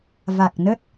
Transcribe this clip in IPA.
v a˨˩ k̚ n ə˦˥ t̚

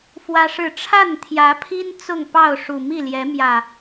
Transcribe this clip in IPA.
f w ä˦ ʂ ɻ̩˥˨ ʈ͡ʂʰ a˥˨ n t̪ʰ j ä˨˦ pʰ i˦ n t͡s ʊ˥˨ ŋ p ɑ˥˨ ʊ̯ ʂ u˨˩ m i˥˨ l j ɛ˨˦ m j ä˨˩

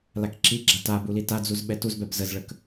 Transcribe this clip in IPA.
l a k ǁ i ɡ͡ǁ a t a b u l i t a d͡z u z ɓ ɛ t u z b ɛ b z ə z ɭ ə k

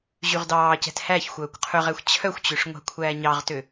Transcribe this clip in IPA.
ʑ y ʁ d ɑː c ɛ̤ t h æ ç xʷ œː kʷ qʰ ɵ ʁ æ xʷ t͡ɕʰ œ xʷ t͡ɕ ø ʂ ŋʷ æ̤ kʷʰ æː ɲ ɑ ʁ t ø

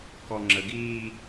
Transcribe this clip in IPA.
k ɔ ŋ͡ǁ ə ɡ iː

